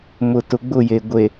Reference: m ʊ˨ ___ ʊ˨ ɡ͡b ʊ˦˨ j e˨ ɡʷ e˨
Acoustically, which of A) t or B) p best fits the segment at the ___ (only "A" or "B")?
A